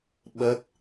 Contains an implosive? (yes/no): yes